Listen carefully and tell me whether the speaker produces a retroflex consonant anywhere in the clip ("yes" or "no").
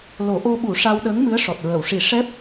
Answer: yes